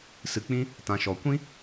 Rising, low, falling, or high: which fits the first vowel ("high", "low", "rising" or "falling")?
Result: low